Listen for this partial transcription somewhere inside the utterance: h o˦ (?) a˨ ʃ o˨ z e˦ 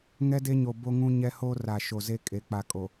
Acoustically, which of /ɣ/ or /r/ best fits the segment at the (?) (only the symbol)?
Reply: r